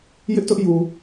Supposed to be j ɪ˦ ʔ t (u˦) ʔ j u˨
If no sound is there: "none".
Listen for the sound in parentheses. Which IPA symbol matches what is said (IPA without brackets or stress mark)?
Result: ʊ˦